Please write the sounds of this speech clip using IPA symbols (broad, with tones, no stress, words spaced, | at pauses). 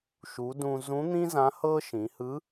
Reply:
ʃu˩˧ dũ˧ zũ˧˥n̪ĩ˥ zã˧˥hɤ˥ ʃĩ˩˧hɯ˧˥